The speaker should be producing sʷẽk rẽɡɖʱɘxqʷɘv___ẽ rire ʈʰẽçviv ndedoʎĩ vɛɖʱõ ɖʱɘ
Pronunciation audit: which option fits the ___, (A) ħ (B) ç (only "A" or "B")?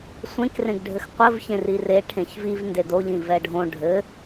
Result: B